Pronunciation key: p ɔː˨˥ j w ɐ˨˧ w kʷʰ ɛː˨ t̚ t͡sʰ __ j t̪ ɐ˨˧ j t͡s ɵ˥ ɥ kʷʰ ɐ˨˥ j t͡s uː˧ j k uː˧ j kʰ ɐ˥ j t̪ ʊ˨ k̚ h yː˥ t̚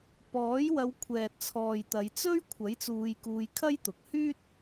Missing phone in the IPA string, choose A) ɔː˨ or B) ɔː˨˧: A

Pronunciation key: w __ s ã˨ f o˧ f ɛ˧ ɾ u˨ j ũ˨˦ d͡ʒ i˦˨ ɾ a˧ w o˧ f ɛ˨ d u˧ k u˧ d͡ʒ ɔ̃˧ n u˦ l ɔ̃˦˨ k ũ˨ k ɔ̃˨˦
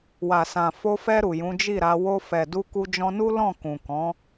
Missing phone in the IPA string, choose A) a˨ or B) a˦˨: A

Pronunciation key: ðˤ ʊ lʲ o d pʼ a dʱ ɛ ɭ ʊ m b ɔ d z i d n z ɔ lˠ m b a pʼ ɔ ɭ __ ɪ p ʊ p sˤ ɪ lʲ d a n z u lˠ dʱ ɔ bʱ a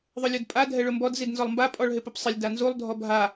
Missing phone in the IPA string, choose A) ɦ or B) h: A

